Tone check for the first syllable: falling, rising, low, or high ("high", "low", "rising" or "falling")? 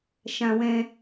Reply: high